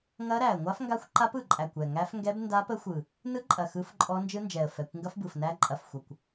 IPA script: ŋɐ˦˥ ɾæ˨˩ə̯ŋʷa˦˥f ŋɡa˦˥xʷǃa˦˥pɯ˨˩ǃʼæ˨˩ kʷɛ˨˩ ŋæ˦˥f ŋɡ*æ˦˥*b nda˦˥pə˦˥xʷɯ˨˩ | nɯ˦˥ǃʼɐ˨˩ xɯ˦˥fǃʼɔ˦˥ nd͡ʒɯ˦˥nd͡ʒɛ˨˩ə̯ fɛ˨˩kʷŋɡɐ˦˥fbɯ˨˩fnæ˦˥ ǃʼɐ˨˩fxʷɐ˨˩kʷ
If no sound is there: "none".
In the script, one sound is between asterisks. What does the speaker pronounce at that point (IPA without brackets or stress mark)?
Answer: ɛ˦˥